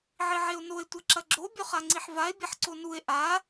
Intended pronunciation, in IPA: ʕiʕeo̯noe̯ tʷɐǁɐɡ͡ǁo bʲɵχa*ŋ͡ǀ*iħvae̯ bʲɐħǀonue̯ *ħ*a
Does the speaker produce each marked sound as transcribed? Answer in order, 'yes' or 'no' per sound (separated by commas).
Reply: yes, no